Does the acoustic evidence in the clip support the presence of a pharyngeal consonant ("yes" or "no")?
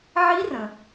yes